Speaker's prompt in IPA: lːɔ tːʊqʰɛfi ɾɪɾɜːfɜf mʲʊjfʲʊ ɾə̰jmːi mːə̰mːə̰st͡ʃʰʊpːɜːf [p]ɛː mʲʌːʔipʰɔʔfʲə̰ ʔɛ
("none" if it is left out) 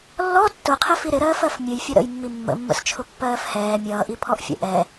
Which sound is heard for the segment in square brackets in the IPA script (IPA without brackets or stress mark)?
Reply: h